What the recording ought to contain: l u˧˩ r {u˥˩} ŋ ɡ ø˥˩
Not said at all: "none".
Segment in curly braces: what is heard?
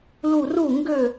u˥˩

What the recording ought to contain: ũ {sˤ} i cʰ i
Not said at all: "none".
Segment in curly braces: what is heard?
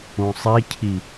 sˤ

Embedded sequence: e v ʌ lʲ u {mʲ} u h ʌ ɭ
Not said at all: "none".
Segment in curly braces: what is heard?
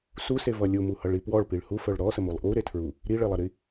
m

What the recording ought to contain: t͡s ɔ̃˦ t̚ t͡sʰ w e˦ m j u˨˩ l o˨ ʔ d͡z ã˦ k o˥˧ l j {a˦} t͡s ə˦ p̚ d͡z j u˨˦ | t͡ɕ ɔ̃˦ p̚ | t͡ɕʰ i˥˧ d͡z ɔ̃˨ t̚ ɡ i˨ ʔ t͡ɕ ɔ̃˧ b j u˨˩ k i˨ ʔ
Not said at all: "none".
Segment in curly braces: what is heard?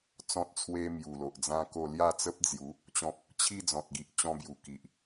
a˥˧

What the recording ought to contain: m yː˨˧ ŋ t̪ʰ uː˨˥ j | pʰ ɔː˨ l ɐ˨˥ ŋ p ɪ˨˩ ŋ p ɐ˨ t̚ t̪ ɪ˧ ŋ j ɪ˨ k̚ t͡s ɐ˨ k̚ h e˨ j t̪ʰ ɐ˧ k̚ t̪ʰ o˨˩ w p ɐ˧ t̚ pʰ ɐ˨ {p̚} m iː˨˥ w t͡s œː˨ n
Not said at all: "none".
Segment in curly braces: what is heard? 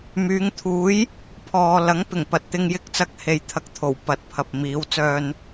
p̚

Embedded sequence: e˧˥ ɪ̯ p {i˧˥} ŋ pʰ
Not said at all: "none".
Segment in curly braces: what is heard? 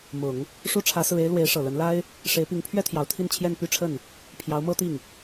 i˧˥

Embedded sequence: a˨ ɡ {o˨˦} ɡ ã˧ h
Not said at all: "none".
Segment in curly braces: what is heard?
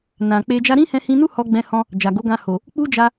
o˨˦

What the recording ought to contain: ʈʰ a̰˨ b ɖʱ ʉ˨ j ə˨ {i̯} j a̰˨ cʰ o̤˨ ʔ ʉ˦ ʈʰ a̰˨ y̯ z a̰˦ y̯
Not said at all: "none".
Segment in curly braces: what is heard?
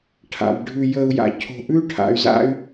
u̯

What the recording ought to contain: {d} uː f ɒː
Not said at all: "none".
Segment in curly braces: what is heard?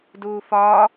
d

